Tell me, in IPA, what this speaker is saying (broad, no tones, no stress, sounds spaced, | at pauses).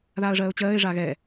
ð aː ə̯ ʐ ɜː ʊ̯ t͡ɕ ɜː ɪ̯ ʐ a ɣ ɛ